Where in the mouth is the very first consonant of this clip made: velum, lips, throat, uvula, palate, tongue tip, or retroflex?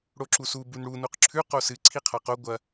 retroflex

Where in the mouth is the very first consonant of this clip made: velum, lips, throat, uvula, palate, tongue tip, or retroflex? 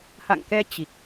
throat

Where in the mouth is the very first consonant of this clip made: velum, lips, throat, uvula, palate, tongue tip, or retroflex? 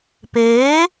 lips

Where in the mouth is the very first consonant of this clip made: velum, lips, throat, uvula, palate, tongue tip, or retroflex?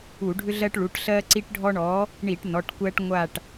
retroflex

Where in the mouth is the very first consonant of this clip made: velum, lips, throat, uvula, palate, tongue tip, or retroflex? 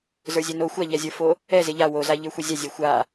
tongue tip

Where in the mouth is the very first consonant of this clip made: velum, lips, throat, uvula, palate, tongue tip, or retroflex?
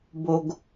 lips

